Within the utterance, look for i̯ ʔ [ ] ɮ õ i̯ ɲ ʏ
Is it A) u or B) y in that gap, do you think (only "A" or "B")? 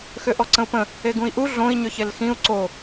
A